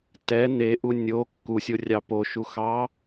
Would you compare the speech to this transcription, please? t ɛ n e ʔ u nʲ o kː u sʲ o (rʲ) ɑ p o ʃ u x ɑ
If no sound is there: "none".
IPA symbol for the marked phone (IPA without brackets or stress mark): rʲ